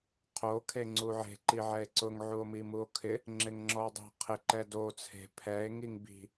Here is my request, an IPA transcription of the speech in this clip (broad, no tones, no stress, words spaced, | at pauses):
qʰo kʰeŋ͡ǀuʕe̤ ǃiʕɛe̯ǀʊŋ ʕuo̯mimuo̯kʰɪ | ŋ͡ǁeŋŋ͡ǁɔo̯dˤi̤ qʰɪ ǃɛdo t͡sʰe̤ pʰɛe̯ ŋiŋbi̤